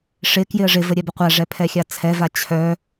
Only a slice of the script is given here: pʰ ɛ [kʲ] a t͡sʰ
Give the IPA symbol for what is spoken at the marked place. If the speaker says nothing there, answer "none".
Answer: xʲ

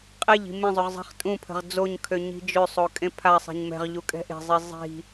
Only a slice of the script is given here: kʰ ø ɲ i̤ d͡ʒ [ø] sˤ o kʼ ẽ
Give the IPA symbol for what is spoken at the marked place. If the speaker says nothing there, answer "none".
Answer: ø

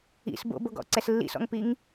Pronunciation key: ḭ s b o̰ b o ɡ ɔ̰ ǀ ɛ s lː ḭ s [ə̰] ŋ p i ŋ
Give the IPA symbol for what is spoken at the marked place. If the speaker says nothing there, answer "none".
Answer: ɔ̰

